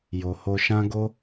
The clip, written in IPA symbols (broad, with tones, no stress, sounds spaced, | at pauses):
j o˨ h o˧ ʃ ã˦ ɡ o˦